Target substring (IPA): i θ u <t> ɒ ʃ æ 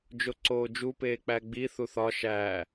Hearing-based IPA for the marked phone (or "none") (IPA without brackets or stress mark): θ